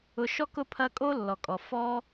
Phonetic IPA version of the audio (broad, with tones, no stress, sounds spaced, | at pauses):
ʊ˨ ʃ ɔ˥ k ʊ˦ pʰ ɐ˦ kʼ o˥ lː ɔ˩ kʼ ɔ˩ f ɔ˦